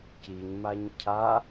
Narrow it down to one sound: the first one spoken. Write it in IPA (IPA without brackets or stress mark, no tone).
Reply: c